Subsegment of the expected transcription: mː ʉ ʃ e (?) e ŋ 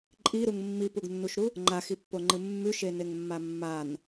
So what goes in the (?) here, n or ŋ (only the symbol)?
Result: n